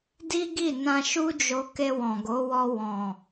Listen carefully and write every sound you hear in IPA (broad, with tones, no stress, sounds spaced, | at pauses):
d i˦ ɡ i˦˨ n ã˧ ʃ u˦ d͡ʒ o˧ k e˧ w ɔ̃˨ ɡ o˨˦ w ɔ˧ w ɔ̃˨